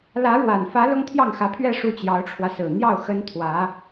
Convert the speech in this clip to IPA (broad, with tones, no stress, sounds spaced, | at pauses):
l ä˧˥ ɻ w a˨˩ n f ä˧˥ l ʊ˥ ŋ t̪ʰ j ɑ˥˩ ŋ x ä˧˥ pʰ ɥ ɛ˥˧ ʂ u˥˩ t͡ɕ j ɑ˧˥ ʊ̯ ʈ͡ʂʰ w ä˧ s ɹ̩˨˩ n̪ j ɑ˥˩ ʊ̯ x ə˥ n t̪ʰ w ä˧˥